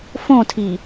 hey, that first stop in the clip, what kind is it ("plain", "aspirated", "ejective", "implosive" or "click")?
aspirated